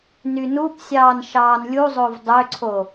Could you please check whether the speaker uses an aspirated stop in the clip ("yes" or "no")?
yes